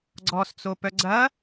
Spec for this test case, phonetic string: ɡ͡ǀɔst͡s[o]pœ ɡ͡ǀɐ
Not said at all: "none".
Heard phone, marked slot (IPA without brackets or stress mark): o